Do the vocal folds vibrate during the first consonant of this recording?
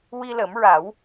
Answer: yes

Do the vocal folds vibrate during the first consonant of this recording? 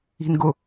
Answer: yes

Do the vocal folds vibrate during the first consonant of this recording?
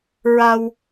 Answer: yes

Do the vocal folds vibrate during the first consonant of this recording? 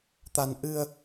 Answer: no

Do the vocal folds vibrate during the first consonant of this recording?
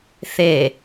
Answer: no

